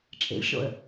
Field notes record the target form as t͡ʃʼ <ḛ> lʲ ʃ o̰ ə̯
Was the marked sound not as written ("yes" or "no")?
no